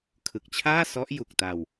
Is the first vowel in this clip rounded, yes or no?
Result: no